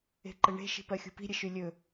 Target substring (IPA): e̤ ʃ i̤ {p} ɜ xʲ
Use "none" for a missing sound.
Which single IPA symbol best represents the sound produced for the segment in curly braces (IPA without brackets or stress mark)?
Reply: p